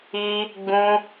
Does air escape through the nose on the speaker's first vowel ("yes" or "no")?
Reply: no